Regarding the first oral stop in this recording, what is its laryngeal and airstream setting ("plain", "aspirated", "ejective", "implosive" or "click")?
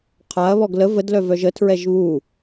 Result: aspirated